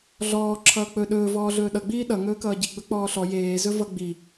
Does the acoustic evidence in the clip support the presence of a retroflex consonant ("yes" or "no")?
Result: no